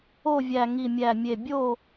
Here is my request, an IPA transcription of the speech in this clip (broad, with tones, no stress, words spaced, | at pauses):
o˥˨vʲæ˧˩ ŋi˧˩mʲæ˧˩mʲe˧˩ bʲo˥˨